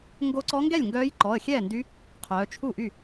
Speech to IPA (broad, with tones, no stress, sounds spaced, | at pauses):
ŋ ɡ o˧˥ ǀ ɔ˧˥ ŋ ɡ ɛ˥˩ lʲ ŋ ɡ œː˧˥ j ǃ ɔ˩˧˩ ə̯ xʲ ɛː˥˩ n d y˧˥ | qʰ œː˩˧ t͡ʃʰ u˥˩ ʔ y˥˩